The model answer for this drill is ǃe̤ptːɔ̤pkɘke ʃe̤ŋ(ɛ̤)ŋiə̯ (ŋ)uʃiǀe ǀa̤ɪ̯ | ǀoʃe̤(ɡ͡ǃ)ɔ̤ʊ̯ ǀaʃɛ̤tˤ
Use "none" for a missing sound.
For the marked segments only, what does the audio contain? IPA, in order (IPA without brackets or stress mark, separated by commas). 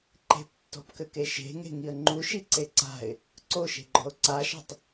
e̤, ŋ͡ǃ, ɡ͡ǃ